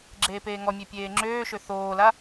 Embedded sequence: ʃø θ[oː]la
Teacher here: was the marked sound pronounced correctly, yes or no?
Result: yes